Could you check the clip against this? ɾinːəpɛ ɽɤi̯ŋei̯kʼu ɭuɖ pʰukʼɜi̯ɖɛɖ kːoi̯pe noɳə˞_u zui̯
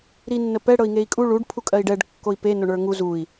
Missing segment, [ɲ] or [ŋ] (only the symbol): ŋ